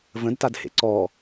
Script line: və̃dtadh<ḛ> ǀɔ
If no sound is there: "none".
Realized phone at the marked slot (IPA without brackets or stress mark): ḛ